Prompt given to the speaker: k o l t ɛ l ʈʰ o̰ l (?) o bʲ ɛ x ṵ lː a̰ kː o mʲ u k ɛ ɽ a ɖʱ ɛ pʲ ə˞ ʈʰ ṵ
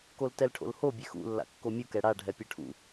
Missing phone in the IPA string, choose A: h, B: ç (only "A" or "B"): A